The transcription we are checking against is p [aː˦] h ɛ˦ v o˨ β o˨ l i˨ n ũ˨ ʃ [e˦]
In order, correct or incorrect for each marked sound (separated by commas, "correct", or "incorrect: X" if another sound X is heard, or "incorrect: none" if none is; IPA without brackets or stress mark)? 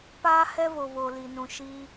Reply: correct, incorrect: i˦